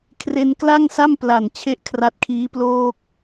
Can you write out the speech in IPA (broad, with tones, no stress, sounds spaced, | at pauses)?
kʰ r e˧ n k l a˥˩ ŋ s a˥˩ m p l a˨˩ n t͡ɕʰ e˥˩ ʔ kʰ r a˦˥ t̚ kʰ iː˦˥ p l oː˥˩ k̚